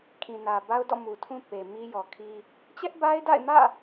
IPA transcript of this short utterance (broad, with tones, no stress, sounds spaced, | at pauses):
kʰ ĩ˨ n ä˨ b a˦ ʊ̯ d ɔ̰˦˨ m u˨ tʰ ũ˦ p e˨ m i˦ j ɔ˨ kʰ i˦ | t͡ɕ ɛ˦ ʔ b a˦ ɪ̯ d a̰˦˨ ɪ̯ m ä̰˦˨